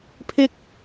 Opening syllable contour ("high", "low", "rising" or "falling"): high